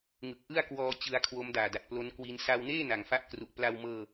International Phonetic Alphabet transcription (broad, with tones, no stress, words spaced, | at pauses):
ŋɯ˨˩k̚ʔɯ˥˩a̯ kwɔː˧ t͡ɕɯ˦˥a̯kʰwo˦˥mdaː˨˩ da˨˩t̚plo˦˥nkwi˦˥n sa˧wneː˥˩ na˨˩ŋfa˥˩ʔkru˨˩ʔ pla˧wmɤː˧